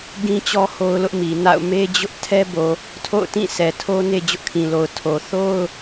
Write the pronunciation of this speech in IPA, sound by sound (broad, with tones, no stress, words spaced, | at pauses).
ɡĩ˦t͡ɕɔ˦ ho˦ʊ̯lʊ˦ʔ mi˨na̰˦˨ʊ̯ me˦ d͡ʑʊ˦ʔ tʰɛ˦bo˨ | tʰo̰˦˨ʊ̯tĩ˦˨ sɛ˨tʰo˦ne˦ d͡ʑʊ˦ʔkʰĩ˨lo˨ʊ̯ tʰo˨ θo˦ʊ̯